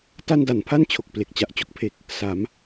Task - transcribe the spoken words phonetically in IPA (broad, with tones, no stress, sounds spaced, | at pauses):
t a˧ n d a˩˦ n pʰ a˥˩ n t͡ɕʰ o˨˩ k̚ p l e˨˩ k̚ t͡ɕ a˨˩ ʔ t͡ɕ o˦˥ k̚ pʰ e˨˩ k̚ | s a˩˦ m